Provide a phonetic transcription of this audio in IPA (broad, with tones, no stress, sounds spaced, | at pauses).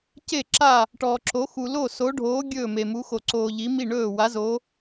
c e˦˨ ǁ a˦˨ | ʈ ɔ˨ ǁ o˨˦ x u˨ l o˦˨ s o˨˦ ɖʱ oː˨˦ ɡʲ ɵː˦˨ m e˨ m u˨˦ x o˨ ǀ oː˨ ʎ i˨˦ m i˦˨ ɳ ɵː˦˨ w a˨˦ z o˨˦